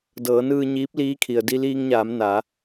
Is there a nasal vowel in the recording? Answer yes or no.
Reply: no